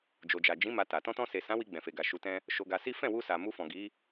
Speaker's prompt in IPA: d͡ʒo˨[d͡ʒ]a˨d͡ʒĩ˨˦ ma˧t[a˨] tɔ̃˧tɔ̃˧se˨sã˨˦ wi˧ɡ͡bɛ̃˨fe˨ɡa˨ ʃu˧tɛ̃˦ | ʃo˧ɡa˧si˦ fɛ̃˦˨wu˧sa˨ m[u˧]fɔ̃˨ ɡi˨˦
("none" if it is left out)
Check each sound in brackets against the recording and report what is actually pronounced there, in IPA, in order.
d͡ʒ, a˨, u˧

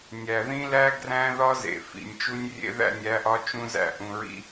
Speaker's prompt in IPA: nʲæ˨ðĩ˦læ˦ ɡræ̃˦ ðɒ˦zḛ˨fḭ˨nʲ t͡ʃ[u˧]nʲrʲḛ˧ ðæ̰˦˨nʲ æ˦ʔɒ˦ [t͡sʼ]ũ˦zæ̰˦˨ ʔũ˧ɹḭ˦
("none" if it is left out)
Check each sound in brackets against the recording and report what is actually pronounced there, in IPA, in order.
u˧, t͡ʃ

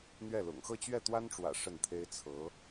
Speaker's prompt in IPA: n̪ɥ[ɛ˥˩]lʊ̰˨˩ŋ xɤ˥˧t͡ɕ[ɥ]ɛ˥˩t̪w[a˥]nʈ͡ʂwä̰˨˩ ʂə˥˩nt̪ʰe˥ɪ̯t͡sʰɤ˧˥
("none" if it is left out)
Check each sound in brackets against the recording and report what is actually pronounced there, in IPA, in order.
ɛ˥˩, ɥ, a˥

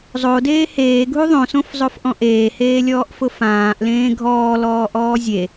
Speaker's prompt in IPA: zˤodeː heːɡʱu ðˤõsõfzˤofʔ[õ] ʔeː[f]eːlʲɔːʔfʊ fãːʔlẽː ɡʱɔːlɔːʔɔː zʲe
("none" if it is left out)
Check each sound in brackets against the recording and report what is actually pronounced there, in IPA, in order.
ɔ̃, h

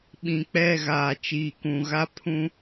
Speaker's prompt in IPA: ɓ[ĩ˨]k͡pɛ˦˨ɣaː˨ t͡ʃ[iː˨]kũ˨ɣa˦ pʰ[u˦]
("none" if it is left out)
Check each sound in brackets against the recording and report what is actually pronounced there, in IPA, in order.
ĩ˨, iː˨, ũ˦

